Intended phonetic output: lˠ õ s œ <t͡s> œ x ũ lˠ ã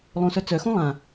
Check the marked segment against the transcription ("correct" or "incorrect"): correct